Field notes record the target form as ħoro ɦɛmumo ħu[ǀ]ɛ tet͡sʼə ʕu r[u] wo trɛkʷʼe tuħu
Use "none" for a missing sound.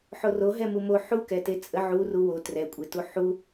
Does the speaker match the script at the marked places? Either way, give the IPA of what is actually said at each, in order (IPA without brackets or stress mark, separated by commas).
k, u